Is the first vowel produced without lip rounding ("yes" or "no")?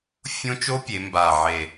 no